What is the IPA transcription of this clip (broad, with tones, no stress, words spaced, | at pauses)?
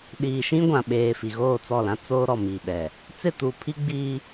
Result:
ɗiː˨ʃĩ˦ɡʷã˨ɓeː˨ fi˨ɣoː˦˨t͡sɔ˦˨lã˦ t͡soː˦ ɾɔ˨mi˨ɓɛ˨ | t͡sɪ˦˨tuː˨pʰi˦ɡ͡biː˦